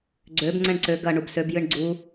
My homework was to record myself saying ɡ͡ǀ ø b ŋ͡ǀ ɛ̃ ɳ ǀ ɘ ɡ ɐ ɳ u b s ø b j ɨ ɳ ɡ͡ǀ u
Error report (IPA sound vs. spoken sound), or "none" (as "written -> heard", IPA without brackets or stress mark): ɘ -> ø